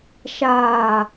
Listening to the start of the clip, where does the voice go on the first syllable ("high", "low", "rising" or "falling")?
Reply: low